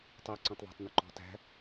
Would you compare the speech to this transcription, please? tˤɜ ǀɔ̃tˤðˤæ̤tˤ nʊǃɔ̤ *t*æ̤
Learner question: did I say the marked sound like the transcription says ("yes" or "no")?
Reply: yes